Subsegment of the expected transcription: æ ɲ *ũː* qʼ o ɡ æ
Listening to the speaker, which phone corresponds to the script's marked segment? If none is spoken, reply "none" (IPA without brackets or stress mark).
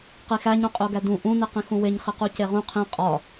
ũ